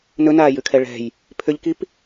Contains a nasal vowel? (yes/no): no